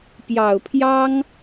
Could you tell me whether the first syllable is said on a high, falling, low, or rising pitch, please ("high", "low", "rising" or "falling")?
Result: low